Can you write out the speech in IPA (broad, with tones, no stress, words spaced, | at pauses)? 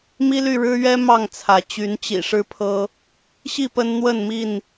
mi˦ly˥˨ ɻɻ̩˦ɥɛ˦ mɑ˥˨ŋt͡sʰä˨˦ t͡ɕy˨˦nt͡ɕḭ˨˩ ʂɻ̩˦pʰɤ˦ | ɕi˥˨ pə˦nn̪wə˥˨nmi˥˨n